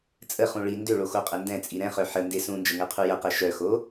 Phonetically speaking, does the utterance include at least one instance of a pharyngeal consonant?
yes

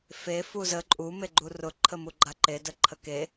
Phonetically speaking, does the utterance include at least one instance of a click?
yes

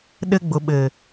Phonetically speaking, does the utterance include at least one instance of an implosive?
yes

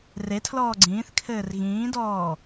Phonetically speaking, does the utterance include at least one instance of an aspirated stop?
yes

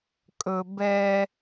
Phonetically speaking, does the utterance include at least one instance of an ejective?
yes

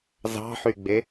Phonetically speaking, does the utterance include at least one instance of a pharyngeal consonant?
yes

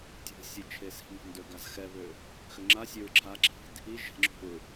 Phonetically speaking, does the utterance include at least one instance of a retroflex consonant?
no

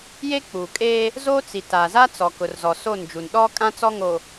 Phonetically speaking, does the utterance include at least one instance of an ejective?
yes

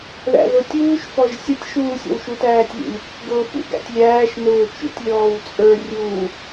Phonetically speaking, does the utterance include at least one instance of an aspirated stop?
no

